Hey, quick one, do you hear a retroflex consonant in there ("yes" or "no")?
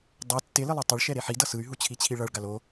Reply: yes